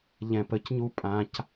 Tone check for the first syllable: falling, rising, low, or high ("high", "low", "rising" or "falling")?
low